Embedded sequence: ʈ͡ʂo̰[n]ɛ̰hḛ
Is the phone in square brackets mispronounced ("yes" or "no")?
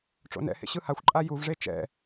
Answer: no